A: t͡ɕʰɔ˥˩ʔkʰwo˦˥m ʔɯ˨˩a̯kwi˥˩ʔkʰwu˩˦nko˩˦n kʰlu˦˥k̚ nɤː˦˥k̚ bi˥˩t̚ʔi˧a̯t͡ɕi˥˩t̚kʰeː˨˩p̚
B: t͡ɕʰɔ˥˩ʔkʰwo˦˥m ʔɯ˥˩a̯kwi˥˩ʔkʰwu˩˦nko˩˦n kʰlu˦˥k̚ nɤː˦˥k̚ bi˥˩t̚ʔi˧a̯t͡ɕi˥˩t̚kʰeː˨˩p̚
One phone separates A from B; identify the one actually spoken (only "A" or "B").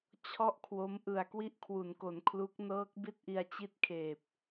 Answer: A